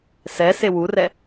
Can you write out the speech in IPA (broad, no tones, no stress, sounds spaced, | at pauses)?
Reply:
s ɛ s e w u r ɛ